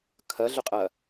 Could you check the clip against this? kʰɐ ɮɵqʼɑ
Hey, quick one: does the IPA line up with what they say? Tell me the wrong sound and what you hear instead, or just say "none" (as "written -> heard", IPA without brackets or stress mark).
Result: ɑ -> ɐ